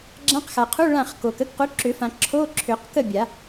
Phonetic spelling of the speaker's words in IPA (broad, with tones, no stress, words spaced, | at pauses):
ɡ͡ǁã˧˥˧qxa˨qʰu˧˥˧ ɭã˥˨χko˨k ə˧˥˧kqu˨˥ǁʏ˨˩˦fã˨ ǁʰo˧˥˧ǁʰʏ˨˩˦q kə˥˨bʲa˨˩˦